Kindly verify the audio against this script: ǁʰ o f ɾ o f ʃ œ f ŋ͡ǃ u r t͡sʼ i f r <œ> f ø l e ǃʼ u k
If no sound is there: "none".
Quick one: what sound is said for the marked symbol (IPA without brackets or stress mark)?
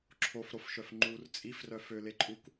œ